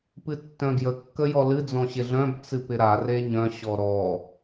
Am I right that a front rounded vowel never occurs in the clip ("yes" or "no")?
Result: no